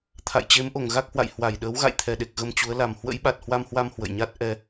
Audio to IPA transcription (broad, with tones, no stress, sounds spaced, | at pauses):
t̪ʰ a̰˧˨ j t͡ɕ e˨˦ m ʔ o˨˩ ŋ ɣ a˦˥ k̚ h w a̰˧˨ j h w a˧˩ j ɗ əː˨˦ w ɣ a̰˧˨ j t̪ʰ ɛ˨˩ ɗ e˨˩ k̚ ɣ ə˧ m t͡ɕ u˨˦ ə̯ l a˨˩ m h w ə̰˧˥ j ɓ a˨˩ t̚ h w a˧ m h w a˧ m h w ə̰˧˨ j ɲ a˦˥ t̚ ʔ ɛ˧